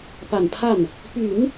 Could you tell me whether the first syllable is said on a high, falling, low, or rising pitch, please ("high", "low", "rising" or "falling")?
low